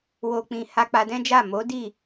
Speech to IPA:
wo˨k͡pĩ˨ ha˧k͡pa˧dɛ̃˦d͡ʒa˦˨ mo˨˦di˦˨

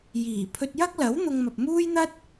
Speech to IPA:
jiː˨˩pʰɵ˧t̚ jɐ˥k̚lɐ˨˥w n̪ʊ˧ŋmɐ˨p̚muː˥jn̪ɐ˥t̚

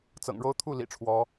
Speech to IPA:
t͡sɤ̰˨˩ŋɻo˥ʊ̯ t̪ʰu˥˩ lḭ˨˩ ʈ͡ʂʰwɔ˧˥

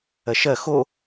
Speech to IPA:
ɜʃɜ xo

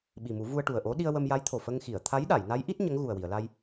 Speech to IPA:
ɓi˨˩mu˨˩˦ vu˧ə̯ʈu˨˩ə̯ʔo˧˥ ɗi˧ə̯wə˧mja˧˥jt̪ʰo˨˩ fə˧ŋxi˨˩˨ə̯ t̪ʰa˧˥jɗa˨˩˨j na˧˥jʔi˦˥t̚ ɲə˧˥ŋɣu˨˩ə̯wi˨˩˨ə̯la˧j

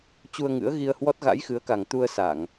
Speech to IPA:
t͡ɕu˧ə̯ŋɨ̰˧˥ə̯ɣi˧ə̯hwɔ˦˥t̚ ɣa̰˧˥jxɨ˨˦ə̯ka˨˩ŋ t̪u˧ə̯sa˧˩˨ŋ

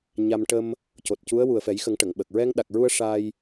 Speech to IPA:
ɲa˧m ʈə˧m | co˨˩t̚cu˧˥ə̯ wu˨˩ə̯fɛ˨˩˦jxə˨˩˦ŋ ʈə˨˩˨ŋɓə˨˩k̚ ɹɛ˧ŋɗa˨˩k̚ɹu˧ə̯ ʂa˧j

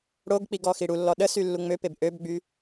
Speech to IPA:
ɽoɡk͡piɡ ɔxiɽulːɔ ɗəsy lːuŋ͡møpeb ʔøbɡ͡by

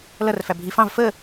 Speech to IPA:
lʌrfæ bʱi fɑ̃v fə

